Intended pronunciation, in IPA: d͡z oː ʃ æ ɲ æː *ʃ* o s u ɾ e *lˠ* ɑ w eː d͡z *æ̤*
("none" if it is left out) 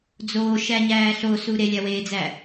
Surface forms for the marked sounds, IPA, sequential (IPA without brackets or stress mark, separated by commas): ɬ, lʲ, æ